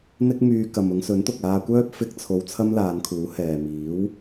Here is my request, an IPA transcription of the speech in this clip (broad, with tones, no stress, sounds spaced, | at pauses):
n̪ ɪ˥ k̚ m yː˧ k ɐ˨ m ʊ˨˧ ŋ s ɵ˨˥ n t̪ ʊ˨ k̚ aː˧ kʷ œː˥ p̚ f ɪ˥ k̚ t͡sʰ o˧ w t͡sʰ ɐ˥ m l aː˨˧ n kʰ uː˨˥ h ɛː˨ m iː˨˥ w